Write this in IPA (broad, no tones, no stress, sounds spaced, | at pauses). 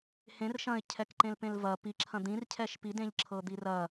h ẽ r ʃ ɐ̃ ɪ̯ cʰ ɛ k ǃ ẽ l p ẽ l v ɐ p i ǁʰ ɐ̃ d̪ ĩ r cʰ ɛ ʃ p i d ẽ ʎ ǁʰ ɤ d̪ i r ɐ